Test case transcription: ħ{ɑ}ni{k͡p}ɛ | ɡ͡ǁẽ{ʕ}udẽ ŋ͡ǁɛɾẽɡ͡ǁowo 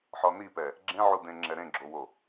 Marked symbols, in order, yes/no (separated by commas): no, no, yes